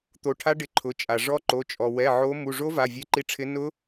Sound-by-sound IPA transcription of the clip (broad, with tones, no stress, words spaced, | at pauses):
t̪o˨˦ʈʰa˦˥ ɖɪ˨˦ǃʰʊ˩˧˩t͡ʃʼa˩ ʐɔ˦˥ǃo˩˧˩t͡ʃʼɔ˩ wɛ˩˧˩ʕo˨˦ mu˩˧˩ʐo˦˥ va˩˧˩vʲe˨˦ǃi˨˦ʈ͡ʂʰɪ˨˦ nʊ˦˥